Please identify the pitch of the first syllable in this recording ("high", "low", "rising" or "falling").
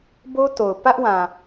high